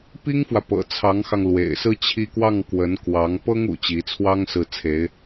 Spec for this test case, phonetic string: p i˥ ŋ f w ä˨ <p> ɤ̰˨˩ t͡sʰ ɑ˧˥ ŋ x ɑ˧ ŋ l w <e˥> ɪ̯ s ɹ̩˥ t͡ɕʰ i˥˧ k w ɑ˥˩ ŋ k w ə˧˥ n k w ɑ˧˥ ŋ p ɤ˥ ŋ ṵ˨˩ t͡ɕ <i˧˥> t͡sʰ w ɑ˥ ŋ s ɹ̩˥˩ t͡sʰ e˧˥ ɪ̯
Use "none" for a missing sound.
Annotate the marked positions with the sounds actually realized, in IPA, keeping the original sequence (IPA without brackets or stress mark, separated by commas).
p, ḛ˨˩, i˧˥